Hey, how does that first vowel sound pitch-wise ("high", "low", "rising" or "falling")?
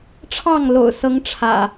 falling